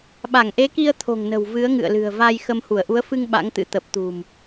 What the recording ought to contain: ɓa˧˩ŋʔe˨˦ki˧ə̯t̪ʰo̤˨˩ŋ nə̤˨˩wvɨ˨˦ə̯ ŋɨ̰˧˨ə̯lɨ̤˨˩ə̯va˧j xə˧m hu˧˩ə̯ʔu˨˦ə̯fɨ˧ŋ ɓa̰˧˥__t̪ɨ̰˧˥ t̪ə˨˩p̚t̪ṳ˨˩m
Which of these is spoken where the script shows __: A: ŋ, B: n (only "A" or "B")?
A